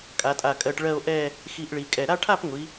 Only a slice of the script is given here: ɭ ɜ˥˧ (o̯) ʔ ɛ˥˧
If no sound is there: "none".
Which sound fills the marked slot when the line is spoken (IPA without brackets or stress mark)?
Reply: o̯